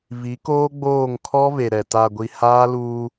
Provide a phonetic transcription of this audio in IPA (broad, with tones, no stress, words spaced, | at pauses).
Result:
vi˨˦koː˦ɡ͡boː˦˨ŋ kʰɔ˦ve˨ɾɛ˨ ta˨ɡʷi˨ haː˦luː˦